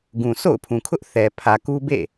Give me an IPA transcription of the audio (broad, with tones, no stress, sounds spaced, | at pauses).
ɡ ũ˨ sʰ o̰˦˨ ʊ̯ pʰ ũ˨ kʰ ʊ˦ ʔ θ ɛ˨ pʰ ä˨ k u˦ b ḛ˦˨